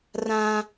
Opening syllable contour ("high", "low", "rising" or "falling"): high